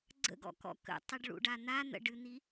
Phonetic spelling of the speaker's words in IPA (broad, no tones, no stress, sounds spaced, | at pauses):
ɡ͡ǀ ə̰ ɡ ɔ̰ k ɔ̰ k ə̰ tˤ i ɖ ɭ ṵ ɖ a n̪ a n̪ ə̰ ɖ ɨ n̪ i